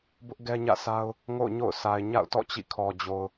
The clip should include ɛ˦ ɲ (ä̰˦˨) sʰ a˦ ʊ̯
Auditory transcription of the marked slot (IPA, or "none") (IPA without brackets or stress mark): ä̰˦˨